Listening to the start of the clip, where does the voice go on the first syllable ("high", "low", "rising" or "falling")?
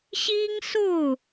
high